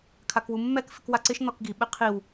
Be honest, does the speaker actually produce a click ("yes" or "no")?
yes